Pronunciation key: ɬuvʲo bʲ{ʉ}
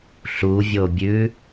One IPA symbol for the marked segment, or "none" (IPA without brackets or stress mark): ʉ